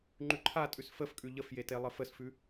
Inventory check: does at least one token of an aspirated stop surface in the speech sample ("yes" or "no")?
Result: yes